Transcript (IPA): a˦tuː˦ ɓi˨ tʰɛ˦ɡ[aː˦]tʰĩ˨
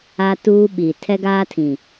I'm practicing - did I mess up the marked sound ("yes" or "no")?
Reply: no